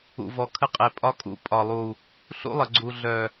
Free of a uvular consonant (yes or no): no